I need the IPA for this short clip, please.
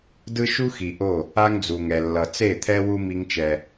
dɯ˦ʃu˦xi˨ʔo˦˨ | a˦ŋd͡zu˨ŋɛ˨ lːʌ˨ t͡se˦˨t̪ʰɛ˦ wu˦ mi˦ŋt͡ʃɛ˦

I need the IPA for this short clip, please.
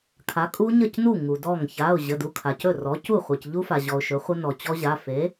kʰa˩˥kʼu˦˥ɲə˥˩cnu˥˩ ŋu˩dɔ˥˩ŋ ça˩˧˩ʊ̯ ʑə˩˧˩du˩˧˩kʰa˩cɵ˥˩ rɔ˩˥cu˥˩ χʷe˩cʎu˦˥fa˩ʑɔ˩ʊ̯ ʃɵ˩˥χʷə˦˥nɔ˩ t͡ɕɔ˦˥ʑa˩˧˩ fe˩˥

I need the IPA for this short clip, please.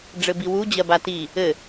ɖ͡ʐɘbiwu d͡ʑɜbati | ɘ

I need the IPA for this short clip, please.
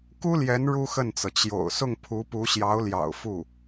ku˥ljɛ˧˥n ɻu˥xə˥˩nt͡sɤ˩ t͡ɕjo̰˨˩ʊ̯ sʊ˥˩ŋpʰu˧˥ pu˧˥ɕjɑ˧˥ʊ̯ljɑ̰˨˩ʊ̯ fu˥˩

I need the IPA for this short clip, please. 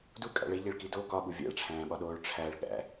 dukʼæ̰ɭ eʎeɭki do kɒɓu vʲæ̰ɭʈ͡ʂʰæ̃ːɓɒɗoːɭ ʈ͡ʂʰæɭ ɠæ̰

